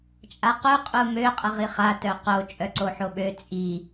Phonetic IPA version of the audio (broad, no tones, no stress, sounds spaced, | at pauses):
t͡ʃʼ a q u qʼ u m ø qʼ ə ʁ i χ a t œ q o t͡ʃʼ œ ǀ o ħ o ɓ ø t͡sʼ i